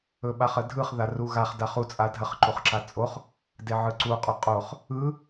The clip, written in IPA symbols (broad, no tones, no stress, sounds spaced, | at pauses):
ɵ ɓ a χ ə dʱ ɯ χ ð a r u ɣ a χ d a χ u t͡sʼ a dʱ ə χ ǃ u χ ǁ a t͡sʼ o χ | d e ʕ ɯ ǀ u qʼ ʊ qʼ o χ | ɯ